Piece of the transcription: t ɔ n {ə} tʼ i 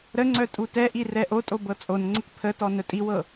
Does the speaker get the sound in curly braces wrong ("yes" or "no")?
yes